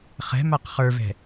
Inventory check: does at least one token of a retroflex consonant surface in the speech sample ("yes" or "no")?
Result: no